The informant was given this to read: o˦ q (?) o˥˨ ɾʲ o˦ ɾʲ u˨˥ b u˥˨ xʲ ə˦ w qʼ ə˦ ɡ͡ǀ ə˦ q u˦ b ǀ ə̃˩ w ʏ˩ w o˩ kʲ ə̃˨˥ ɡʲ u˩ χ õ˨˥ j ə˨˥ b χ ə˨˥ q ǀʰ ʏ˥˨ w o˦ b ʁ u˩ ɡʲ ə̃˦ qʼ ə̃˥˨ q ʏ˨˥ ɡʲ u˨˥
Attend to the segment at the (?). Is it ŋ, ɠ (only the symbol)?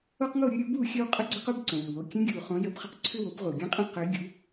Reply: ŋ